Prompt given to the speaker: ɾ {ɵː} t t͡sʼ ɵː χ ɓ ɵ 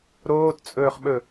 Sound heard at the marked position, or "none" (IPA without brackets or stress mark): oː